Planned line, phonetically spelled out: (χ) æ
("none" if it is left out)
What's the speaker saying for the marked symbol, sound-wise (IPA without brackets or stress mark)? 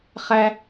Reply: χ